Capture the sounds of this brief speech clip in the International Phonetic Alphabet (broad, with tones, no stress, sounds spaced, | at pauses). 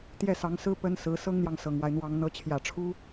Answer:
t̪ j ɛ˥˩ s ɑ˧˥ ŋ s ɹ̩˥ p ə˥ n s ɹ̩˧˥ s ɤ˥ ŋ n̪ j ɑ˨ ŋ s ɤ˨˩ ŋ w a˦ ɪ̯ n̪ w ɑ˧˥ ŋ n̪ ɤ˧˥ t͡ɕʰ j ä˨˩ ʈ͡ʂʰ u˥